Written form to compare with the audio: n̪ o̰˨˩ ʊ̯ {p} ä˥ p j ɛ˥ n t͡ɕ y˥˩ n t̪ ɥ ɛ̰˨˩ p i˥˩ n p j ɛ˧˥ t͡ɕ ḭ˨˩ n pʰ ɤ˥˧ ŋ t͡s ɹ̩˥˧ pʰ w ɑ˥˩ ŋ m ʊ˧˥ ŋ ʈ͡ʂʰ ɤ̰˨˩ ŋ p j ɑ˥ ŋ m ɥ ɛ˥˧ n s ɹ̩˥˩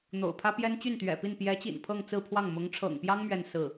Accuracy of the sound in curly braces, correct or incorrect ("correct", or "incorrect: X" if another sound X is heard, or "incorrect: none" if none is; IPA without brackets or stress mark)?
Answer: incorrect: pʰ